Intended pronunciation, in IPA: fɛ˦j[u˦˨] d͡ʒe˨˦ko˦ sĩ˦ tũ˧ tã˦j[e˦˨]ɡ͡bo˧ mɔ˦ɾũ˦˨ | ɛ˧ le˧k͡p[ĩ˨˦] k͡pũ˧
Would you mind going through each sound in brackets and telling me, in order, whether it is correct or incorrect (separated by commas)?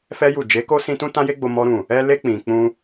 correct, incorrect, incorrect